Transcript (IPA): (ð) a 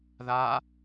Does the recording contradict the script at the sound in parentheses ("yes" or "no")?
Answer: no